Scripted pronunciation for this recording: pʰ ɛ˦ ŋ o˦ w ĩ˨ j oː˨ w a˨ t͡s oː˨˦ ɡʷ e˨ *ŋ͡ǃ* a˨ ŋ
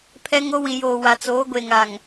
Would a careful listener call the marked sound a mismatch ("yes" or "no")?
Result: yes